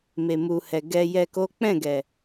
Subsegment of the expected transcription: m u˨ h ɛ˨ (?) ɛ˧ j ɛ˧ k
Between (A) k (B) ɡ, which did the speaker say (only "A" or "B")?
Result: B